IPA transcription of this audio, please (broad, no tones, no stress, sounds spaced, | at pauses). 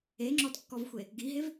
e ŋ͡ǁ ɔ d kː ɔ v xʷ e | ɡ i ɦ e v